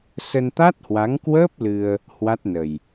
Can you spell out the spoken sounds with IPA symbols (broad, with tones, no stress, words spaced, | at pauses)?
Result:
sə˧nt̪a˦˥t̚hwa˨˦ŋkwəː˦˥p̚ lɨ˧ə̯ | hwa˦˥t̚nə˨˩j